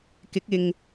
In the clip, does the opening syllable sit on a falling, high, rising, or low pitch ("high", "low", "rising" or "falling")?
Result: rising